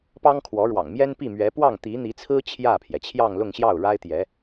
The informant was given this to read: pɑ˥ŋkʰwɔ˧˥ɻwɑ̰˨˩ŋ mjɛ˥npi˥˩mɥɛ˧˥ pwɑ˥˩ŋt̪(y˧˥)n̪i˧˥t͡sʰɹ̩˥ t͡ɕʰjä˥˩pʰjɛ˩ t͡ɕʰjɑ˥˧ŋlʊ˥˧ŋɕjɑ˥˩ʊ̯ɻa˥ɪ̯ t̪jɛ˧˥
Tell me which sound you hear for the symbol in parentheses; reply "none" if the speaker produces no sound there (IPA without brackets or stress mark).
i˧˥